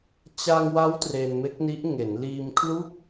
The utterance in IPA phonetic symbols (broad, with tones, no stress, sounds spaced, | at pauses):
t͡ɕ a˧ ŋ w a˦˥ w t r e˧ n m e˦˥ k̚ n i˦˥ ʔ ŋ e˩˦ n l iː˧ m kʰ l u˥˩ k̚